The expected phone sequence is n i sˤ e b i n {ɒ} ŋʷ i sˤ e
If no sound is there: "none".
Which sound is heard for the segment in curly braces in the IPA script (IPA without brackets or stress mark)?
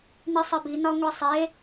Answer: ɒ